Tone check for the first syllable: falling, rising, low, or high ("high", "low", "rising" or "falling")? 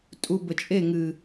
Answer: low